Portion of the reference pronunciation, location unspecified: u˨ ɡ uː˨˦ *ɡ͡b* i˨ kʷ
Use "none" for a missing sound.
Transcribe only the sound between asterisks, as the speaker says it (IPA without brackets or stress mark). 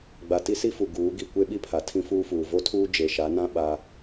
ɡ